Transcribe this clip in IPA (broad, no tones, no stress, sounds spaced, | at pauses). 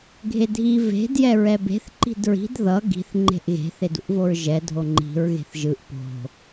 ɡʱ e dʱ i v e̤ d j ɛ ɹ ɛ b e̤ θ ǃ i̤ d ɹ i̤ d ð ʌ ɡ i̤ θ ŋ͡ǃ e̤ ʔ ɣ e̤ θ e d ṵ ʔ v o ɹ ʒ ɛ dʱ o ŋ͡ǃ i̤ ɹ ɣ e̤ θ ʒ ɯ ʔ p o̤